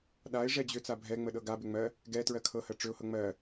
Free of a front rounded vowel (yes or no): no